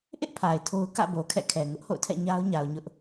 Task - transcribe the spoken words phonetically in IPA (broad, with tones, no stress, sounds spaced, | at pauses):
ʔ ɪ˦ ʔ pʰ a˨ ɪ̯ tʰ o˦ ʊ̯ k ä̰˦˨ b o˨ kʰ ɛ̰˦˨ kʰ ɛ˨ ŋ ʊ˦ ʔ h o̰˦˨ ʊ̯ tʰ ɛ̰˦˨ ɲ a˦ ʊ̯ ɲ a˨ ʊ̯ ɲ ʊ˦ ʔ